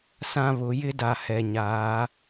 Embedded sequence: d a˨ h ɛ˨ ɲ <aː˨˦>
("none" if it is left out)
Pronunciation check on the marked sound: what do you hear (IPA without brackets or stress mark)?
aː˨˦